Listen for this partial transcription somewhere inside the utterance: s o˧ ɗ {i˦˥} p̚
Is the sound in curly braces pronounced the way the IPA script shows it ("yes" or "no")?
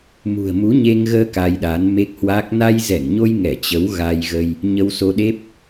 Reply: no